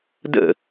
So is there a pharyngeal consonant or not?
no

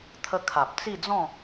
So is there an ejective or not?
no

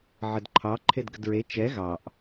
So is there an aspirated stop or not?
yes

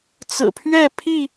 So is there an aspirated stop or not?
yes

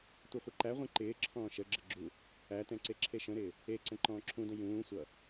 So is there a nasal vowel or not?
yes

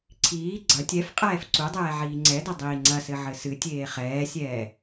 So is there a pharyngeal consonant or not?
yes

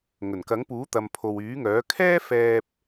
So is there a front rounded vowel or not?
yes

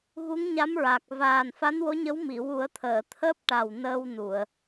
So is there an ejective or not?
no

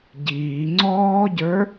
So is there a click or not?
yes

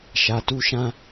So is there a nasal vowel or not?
yes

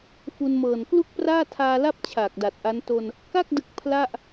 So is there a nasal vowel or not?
no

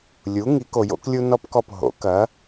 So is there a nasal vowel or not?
no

